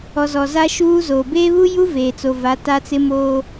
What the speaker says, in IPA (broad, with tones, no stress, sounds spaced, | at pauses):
ɔ˨ z ɔ˨ z a˦ ʃ uː˦ z oː˨ b eː˦ β u˦ j u˦ v eː˨ t͡s o˨ v a˨˦ t a˦ t͡s ɪ˦ m oː˦